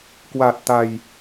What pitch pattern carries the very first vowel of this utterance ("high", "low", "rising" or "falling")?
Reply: low